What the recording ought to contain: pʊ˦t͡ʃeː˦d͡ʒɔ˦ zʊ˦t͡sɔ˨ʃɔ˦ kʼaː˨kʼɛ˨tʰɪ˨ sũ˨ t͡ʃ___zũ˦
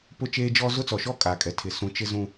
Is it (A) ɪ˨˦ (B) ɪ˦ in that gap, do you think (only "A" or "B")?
B